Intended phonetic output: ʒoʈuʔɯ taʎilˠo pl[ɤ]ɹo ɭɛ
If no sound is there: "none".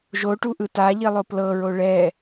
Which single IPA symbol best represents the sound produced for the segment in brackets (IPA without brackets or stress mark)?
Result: ɤ